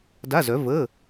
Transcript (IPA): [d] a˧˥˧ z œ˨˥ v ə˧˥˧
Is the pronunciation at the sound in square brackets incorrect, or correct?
correct